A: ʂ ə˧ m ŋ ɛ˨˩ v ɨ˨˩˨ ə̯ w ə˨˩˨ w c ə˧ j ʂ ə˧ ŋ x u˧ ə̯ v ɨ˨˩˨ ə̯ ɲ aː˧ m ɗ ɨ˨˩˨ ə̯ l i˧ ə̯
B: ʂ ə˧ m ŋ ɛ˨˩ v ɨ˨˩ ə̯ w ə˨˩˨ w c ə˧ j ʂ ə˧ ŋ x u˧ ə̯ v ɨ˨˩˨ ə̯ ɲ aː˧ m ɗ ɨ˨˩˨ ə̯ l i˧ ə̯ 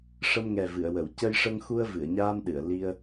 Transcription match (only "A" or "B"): A